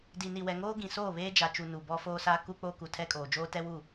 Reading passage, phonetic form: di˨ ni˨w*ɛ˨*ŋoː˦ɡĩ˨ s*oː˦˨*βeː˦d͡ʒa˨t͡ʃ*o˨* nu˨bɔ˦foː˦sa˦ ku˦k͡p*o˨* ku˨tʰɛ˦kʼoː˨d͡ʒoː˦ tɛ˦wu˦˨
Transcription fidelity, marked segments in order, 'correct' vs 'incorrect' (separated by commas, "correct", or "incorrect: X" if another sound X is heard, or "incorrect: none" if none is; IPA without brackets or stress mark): correct, correct, incorrect: u˨, incorrect: o˦